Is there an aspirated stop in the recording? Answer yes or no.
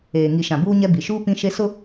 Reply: no